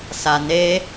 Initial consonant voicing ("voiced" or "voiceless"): voiceless